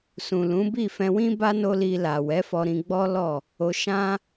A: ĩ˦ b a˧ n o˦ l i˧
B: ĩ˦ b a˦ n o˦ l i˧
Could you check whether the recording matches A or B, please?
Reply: B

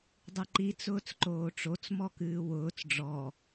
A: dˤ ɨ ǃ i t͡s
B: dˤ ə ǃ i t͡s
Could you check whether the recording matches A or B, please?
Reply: A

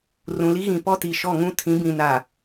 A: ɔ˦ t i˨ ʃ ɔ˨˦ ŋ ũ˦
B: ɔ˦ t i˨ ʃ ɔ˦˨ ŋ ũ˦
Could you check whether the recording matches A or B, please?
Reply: B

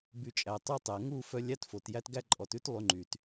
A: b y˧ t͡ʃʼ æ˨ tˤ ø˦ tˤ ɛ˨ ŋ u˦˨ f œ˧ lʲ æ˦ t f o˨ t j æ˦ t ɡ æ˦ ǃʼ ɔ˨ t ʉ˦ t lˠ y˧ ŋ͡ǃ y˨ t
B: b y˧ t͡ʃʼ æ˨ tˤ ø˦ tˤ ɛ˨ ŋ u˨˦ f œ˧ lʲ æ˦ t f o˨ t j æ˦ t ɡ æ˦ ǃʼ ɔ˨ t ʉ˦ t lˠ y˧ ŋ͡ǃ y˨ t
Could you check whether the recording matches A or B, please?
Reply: A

